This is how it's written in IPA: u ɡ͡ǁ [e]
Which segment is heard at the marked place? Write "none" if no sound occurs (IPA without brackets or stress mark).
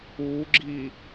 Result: i